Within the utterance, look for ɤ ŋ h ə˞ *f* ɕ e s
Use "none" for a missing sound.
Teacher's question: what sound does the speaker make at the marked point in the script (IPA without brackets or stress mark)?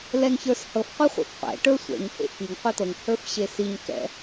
f